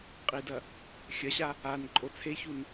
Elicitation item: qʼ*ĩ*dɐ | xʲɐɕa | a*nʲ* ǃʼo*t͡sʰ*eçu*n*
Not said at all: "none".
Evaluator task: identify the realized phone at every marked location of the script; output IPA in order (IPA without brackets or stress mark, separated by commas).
i, n, t͡sʰ, n